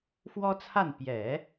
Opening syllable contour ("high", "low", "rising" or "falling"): high